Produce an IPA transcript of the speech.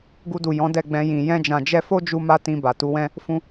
ɡ u˧ d u˨ j ɔ̃˨˦ d ɛ˦˨ ɡ͡b ɛ̃˧ j ĩ˨ j ɛ̃˧ d͡ʒ ã˨ d͡ʒ ɛ˧ f o˦ d͡ʒ u˦ m a˦ t ĩ˧ b a˨ t u˨˦ w ɛ̃˦ | f ũ˦

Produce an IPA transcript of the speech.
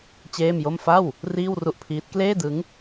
t͡ɕ eː˥˩ m j o˥˩ m f a˥˩ w | r iː˥˩ w r u˥˩ ʔ pʰ iː˦˥ t̚ k l eː˥˩ d ɯ˦˥ ŋ

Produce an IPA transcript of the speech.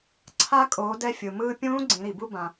ǀʰ a˧ kʼ oː˩˧ d ɛ˧ fʲ ɯ˩ m ɯː˧ pʲ ũː˧˥ ɡ͡ǀ ĩ˩˧ ɾ i˩ b u˧ b ã˩

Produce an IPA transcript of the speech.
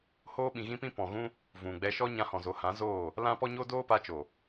h oː˦ ɓ ĩ˨ ɣ ĩ˦ p ĩ˦ p ɔ̃˨ ɣ ũ˦ | v ũ˨ ɡ͡b ɛ˧ ʃ ɔ˦ ɲ ã˧ h ɔ̃˨ z o˨ h ã˨˦ z oː˦˨ | l ã˦ p ɔ˦ ɲ o˦ d oː˦ p a˧ t͡ʃ o˨

